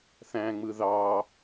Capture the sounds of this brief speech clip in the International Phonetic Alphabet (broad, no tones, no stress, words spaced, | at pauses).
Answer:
θæ̃ŋ͡mɯ ðɑ